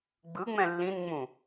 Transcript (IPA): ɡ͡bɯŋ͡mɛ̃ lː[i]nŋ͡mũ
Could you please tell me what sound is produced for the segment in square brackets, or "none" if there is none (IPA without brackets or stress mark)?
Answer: ĩ